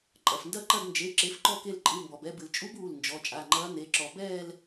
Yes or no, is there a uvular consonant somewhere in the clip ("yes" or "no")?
no